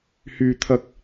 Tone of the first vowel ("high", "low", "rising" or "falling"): low